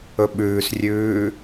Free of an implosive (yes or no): no